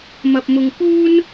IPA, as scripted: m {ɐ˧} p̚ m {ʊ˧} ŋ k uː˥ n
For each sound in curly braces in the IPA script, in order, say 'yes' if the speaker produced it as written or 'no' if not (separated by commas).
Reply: yes, yes